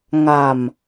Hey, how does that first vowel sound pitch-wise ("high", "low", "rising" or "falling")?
low